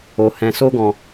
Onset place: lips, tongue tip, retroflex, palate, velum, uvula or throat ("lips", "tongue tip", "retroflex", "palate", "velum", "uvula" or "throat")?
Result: throat